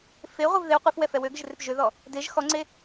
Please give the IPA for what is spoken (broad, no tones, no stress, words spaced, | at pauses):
feʁʷɪv ðɪw qʷefwɛ fɛwøɡɪʒ rɪpʒøðɔ | deʒ xɔŋ͡ǀe